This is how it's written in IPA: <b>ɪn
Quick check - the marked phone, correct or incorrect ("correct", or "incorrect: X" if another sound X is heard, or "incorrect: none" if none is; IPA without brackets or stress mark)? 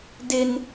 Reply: incorrect: d